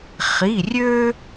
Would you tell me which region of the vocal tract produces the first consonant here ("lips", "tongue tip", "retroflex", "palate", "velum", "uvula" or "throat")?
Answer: uvula